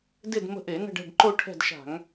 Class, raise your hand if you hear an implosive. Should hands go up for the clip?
no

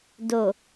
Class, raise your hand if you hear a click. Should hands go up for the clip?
no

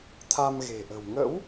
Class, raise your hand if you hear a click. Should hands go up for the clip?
no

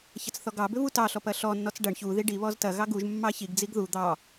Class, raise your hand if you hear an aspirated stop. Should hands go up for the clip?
no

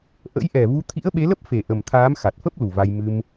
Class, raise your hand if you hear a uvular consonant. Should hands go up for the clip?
no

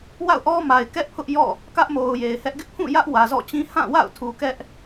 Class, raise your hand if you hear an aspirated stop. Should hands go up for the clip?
yes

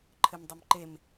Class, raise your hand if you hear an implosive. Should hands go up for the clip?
no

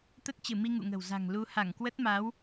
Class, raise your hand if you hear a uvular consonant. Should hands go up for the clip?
no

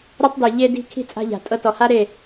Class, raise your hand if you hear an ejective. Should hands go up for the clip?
yes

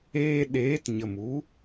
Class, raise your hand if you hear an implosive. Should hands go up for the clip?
yes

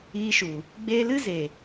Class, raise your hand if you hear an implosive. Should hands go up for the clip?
no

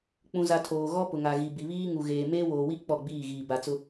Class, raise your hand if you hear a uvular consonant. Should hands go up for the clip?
no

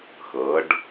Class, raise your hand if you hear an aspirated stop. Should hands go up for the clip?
no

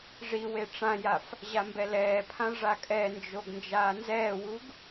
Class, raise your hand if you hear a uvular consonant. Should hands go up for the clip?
no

